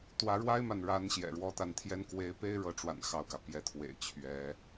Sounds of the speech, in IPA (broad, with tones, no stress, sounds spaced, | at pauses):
t̪ w ä˧˥ ɻ w a˥ ɪ̯ m a˨ n ɻ a˧˥ n ɕ j ɛ̰˨˩ ɻ w ɔ˧˥ t̪ a˧˥ n t̪ʰ j ɛ˥ n k w e˧˥ ɪ̯ p e˥ ɪ̯ ɻ ɤ˧˥ ʈ͡ʂ w a̰˨˩ n x ɑ˥˩ ʊ̯ k ä˩ p j ɛ˧˥ t̪ʰ w ḛ˨˩ ɪ̯ t͡ɕʰ ɥ ɛ˧˥